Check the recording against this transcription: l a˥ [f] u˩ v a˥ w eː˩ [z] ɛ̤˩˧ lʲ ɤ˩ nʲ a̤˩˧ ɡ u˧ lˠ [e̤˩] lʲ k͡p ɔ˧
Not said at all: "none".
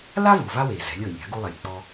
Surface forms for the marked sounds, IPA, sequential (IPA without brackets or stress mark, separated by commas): v, z, e˩